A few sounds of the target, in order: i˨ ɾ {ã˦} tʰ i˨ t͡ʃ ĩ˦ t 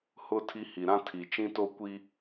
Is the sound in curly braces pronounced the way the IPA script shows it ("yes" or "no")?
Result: yes